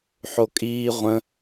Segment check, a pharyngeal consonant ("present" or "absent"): present